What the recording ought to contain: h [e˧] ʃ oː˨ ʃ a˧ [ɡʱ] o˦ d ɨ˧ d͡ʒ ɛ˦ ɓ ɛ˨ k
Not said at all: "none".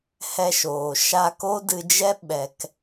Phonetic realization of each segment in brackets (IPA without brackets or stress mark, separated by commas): ɛ˧, k